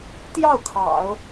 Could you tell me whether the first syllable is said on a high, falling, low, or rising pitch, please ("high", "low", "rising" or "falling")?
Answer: falling